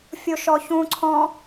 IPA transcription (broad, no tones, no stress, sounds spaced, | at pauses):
fʲ o ʃ ɔ ç ũ ǀʰ ɔ̃